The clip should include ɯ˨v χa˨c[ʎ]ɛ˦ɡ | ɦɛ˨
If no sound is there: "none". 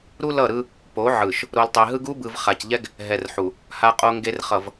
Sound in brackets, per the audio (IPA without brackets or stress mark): ʎ